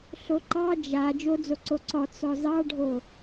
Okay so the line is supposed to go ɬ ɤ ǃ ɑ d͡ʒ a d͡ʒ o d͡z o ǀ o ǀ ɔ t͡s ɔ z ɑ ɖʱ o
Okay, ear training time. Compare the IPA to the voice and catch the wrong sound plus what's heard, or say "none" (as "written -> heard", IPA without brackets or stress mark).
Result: ɤ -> o